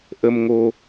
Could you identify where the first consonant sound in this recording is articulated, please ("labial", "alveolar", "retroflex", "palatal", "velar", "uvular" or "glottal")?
glottal